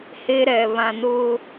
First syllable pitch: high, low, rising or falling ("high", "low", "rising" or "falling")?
high